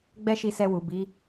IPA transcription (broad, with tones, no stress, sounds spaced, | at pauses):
ɡ͡b ɛ˦ ʃ i˧ s ɛ˧ w u˨ b i˨˦